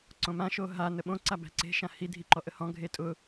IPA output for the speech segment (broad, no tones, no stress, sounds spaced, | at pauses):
ǀ õ m ã ʃ o ɦ a n ə ɓ õ ǀ a b æ̤ ǀ e̤ ʃ ã h i dʱ i ǃ ɔ ʔ ə h ɔ̃ ɡʱ e tʼ ʊ